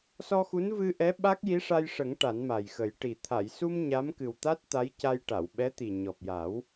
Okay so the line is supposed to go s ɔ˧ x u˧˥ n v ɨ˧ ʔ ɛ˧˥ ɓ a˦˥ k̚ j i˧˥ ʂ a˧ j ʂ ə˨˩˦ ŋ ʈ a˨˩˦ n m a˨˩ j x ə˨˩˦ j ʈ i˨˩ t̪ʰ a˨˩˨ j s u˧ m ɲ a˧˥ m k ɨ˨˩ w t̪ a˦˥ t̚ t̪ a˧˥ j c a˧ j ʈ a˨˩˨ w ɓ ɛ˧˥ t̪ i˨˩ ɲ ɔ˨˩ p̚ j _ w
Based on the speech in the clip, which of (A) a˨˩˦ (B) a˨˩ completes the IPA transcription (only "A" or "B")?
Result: A